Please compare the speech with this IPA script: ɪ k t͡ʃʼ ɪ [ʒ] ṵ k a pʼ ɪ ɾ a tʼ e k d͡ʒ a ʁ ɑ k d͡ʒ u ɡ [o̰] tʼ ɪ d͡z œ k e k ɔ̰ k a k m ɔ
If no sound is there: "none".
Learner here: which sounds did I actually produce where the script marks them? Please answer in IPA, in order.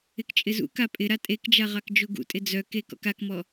z, ṵ

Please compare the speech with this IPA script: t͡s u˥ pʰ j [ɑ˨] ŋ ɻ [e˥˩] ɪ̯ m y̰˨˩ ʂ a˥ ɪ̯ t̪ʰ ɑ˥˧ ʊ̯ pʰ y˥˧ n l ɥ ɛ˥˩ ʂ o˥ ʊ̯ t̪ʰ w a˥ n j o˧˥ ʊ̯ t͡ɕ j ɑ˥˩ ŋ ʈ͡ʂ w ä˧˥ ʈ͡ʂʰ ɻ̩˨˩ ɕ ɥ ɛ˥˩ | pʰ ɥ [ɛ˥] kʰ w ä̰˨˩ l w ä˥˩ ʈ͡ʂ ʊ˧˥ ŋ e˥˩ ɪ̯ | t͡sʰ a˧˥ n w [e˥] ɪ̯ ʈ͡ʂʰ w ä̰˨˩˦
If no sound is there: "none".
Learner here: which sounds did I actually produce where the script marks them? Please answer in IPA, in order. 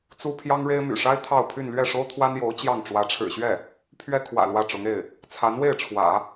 ɑ˥, e˥, ɛ˥, e˥˩

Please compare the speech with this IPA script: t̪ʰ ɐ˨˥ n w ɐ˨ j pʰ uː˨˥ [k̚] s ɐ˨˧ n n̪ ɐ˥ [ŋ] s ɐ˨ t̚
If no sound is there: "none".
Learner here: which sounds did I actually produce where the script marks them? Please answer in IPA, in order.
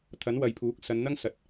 k̚, ŋ

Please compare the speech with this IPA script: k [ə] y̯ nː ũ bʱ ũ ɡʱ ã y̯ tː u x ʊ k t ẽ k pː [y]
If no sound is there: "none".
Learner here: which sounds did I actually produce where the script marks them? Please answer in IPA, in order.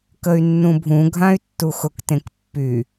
ə, y

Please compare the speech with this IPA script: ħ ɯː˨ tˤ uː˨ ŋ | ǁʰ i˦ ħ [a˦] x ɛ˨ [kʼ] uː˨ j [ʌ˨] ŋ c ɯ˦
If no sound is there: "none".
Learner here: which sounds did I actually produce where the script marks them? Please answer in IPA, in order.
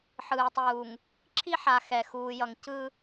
a˨, x, ʌ˨

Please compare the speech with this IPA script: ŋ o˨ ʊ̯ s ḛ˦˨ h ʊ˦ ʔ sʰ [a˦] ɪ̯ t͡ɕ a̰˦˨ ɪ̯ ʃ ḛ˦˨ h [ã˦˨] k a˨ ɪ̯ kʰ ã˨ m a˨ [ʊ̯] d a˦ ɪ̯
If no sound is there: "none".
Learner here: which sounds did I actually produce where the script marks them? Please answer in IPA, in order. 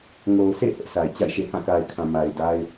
a˨, ã˦˨, ɪ̯

